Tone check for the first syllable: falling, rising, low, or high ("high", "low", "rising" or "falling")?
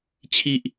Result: high